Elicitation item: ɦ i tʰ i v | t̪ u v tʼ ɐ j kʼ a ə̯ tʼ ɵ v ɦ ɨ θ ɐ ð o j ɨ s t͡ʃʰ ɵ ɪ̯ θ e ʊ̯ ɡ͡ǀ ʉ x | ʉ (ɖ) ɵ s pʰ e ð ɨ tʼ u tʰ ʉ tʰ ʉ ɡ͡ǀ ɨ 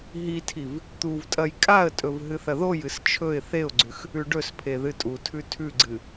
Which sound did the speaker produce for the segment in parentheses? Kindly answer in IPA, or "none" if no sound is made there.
ɖ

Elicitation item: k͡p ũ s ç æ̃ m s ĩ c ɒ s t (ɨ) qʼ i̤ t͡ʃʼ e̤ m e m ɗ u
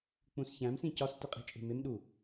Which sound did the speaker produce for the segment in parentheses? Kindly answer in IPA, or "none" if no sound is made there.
i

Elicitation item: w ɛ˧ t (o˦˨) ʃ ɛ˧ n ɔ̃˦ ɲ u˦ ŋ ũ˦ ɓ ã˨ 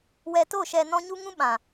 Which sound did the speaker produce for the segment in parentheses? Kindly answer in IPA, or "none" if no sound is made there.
o˦˨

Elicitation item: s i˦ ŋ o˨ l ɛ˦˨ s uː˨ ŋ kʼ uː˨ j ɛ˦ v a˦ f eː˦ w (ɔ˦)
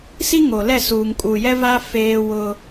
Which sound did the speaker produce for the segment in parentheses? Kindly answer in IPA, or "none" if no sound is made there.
ʊ˦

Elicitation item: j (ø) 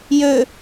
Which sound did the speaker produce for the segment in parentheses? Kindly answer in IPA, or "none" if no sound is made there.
ø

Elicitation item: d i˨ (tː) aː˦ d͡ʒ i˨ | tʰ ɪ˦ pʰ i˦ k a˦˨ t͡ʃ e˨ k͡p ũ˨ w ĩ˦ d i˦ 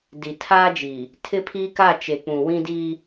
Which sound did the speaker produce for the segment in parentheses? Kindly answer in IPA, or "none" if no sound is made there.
tʰ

